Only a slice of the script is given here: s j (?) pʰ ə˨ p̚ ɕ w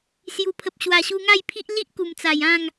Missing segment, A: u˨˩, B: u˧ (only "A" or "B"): A